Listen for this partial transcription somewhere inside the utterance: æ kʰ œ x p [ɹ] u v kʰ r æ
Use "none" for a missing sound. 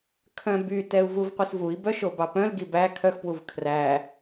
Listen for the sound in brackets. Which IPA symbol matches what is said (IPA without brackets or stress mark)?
w